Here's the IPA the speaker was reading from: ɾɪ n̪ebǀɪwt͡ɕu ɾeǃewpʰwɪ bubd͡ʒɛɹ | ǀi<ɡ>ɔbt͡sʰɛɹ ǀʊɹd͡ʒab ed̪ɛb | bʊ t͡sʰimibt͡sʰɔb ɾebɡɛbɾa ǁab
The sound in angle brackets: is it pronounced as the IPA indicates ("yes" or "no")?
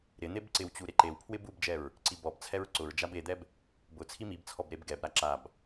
no